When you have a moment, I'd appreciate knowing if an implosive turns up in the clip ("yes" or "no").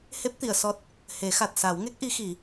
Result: no